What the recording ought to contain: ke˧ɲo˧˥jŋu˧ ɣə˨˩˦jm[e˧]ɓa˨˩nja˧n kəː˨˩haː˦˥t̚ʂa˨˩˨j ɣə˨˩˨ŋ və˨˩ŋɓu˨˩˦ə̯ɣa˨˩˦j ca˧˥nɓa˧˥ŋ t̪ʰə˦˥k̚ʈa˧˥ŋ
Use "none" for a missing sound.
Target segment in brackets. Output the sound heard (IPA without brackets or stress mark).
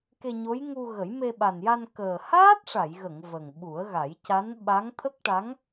e˧